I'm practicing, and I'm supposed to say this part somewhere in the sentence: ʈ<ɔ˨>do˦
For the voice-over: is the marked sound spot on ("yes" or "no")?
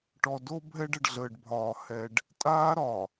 yes